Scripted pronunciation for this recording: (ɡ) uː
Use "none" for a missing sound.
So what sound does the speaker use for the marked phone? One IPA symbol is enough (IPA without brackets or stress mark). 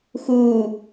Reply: x